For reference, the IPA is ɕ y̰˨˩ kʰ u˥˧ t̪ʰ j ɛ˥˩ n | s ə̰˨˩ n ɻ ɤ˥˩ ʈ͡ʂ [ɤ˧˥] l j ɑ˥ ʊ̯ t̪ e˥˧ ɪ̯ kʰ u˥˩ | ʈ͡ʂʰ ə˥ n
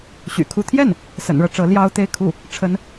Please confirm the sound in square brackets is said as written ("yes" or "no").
yes